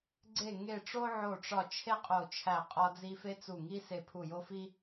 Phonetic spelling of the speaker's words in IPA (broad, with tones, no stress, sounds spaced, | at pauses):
ɡ͡ǀ e˦˨ ŋ e˦˨ ʈ͡ʂ o˥ ʕ o˦˨ ʈ͡ʂ ɒ˦˨ t͡ʃʰ e˥ qʼ o˦˨ t͡ʃʰ æ˦˨ qʼ ɒ˥ d͡z i˥ f e˥ t͡s u˦˨ ŋ i˥ s e˦˨ pʰ u˦˨ j o˥ f i˥